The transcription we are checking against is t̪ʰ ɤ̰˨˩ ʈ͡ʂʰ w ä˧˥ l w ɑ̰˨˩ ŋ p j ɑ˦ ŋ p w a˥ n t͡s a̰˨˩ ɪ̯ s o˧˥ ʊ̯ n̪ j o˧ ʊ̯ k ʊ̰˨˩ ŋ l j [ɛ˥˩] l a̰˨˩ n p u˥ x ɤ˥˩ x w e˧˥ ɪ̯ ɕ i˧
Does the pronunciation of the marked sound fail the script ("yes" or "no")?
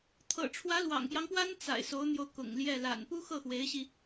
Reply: no